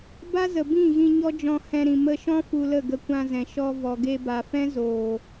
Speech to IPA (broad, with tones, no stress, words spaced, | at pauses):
ba˦zə˨ bĩ˦˨ɣĩ˧ ɲɔ˦d͡ʒɔ̃˧ hɛ̃˧ɾĩ˨ mə˧ʃɔ̃˦ fu˧lə˦˨ɡə˧ kʷã˧ zɛ̃˨ʃɔ˧ vɔ˨ɡe˧ba˨fɛ̃˦ zoː˨